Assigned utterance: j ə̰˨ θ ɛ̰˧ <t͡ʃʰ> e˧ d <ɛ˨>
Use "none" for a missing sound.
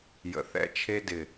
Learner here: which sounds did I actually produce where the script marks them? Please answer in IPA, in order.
t͡ʃʰ, ɪ˨

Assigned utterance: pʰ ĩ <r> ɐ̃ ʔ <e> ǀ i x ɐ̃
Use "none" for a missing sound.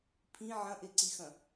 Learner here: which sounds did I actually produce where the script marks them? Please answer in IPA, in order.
ʕ, e

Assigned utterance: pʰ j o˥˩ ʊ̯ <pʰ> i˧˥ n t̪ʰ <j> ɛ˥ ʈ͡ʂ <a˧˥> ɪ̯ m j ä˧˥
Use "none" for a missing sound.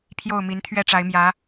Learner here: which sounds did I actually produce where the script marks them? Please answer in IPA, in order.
m, ɥ, a˧˥

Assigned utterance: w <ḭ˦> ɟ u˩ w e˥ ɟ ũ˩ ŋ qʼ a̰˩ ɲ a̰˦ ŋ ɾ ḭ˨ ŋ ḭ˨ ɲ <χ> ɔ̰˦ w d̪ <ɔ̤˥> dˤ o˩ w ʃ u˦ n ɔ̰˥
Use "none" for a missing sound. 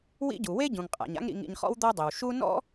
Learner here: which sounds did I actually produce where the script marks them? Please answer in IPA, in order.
ḭ˦, χ, ɔ˥

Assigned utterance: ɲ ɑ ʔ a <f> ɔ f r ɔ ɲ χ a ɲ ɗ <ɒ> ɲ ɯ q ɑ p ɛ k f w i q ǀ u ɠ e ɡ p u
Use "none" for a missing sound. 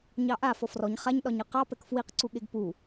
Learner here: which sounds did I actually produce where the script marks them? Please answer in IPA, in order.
f, ɒ

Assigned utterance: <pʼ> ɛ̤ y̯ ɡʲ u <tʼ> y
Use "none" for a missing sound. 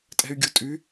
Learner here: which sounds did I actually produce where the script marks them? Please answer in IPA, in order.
tʼ, tʼ

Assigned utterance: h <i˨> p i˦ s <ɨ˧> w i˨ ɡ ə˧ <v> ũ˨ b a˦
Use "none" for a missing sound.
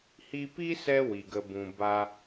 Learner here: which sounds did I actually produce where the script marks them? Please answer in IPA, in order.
i˧, ɛ˧, b

